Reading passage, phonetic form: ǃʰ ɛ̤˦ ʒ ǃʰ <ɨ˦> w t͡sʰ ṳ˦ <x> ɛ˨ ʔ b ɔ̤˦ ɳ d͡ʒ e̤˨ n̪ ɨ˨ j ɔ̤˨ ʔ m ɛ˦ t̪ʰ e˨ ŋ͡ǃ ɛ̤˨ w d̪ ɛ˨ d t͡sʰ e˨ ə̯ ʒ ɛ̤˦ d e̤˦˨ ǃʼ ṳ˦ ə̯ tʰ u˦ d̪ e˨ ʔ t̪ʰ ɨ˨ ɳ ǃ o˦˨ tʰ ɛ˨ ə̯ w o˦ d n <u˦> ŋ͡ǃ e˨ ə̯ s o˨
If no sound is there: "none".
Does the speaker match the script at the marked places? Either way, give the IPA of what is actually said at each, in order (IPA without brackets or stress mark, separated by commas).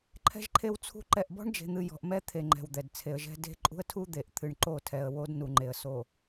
e˦, ǃ, u˨